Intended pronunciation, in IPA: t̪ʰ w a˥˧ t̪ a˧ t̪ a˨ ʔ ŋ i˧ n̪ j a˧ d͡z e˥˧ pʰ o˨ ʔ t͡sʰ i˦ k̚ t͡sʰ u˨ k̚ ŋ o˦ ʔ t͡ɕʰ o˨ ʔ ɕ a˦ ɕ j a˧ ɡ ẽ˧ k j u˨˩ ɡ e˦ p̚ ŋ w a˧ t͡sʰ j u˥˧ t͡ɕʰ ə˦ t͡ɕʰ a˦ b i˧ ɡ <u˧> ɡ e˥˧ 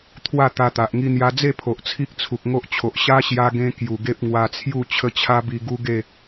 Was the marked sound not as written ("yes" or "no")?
yes